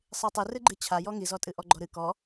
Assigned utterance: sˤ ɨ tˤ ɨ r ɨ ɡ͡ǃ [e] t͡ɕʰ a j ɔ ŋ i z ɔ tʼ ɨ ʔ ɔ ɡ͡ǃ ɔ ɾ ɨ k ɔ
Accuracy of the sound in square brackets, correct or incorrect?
incorrect: ɨ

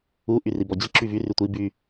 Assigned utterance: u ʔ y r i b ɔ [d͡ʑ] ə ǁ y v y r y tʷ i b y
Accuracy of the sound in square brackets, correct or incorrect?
correct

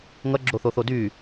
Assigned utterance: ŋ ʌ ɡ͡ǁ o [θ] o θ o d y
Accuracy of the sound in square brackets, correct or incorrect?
correct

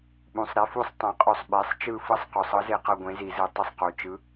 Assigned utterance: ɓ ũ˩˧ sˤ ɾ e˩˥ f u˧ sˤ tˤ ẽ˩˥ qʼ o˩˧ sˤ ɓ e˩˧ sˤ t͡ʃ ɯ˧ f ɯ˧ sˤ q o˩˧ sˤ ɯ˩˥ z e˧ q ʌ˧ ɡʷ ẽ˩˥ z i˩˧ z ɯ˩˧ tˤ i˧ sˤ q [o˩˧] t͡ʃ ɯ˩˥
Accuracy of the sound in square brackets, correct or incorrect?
correct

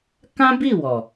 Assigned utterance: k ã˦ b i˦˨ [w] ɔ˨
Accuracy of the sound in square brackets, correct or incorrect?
correct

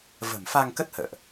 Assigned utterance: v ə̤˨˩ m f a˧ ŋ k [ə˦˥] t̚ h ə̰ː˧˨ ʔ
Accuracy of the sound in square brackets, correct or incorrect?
correct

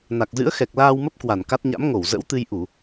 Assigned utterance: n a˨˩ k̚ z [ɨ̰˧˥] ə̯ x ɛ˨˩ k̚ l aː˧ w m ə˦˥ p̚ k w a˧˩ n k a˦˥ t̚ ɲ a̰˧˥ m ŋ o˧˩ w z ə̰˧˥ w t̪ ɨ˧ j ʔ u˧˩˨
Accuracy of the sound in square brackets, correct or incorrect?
correct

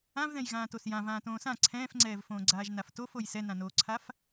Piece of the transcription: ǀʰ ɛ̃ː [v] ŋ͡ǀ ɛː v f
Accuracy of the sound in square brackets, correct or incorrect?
incorrect: f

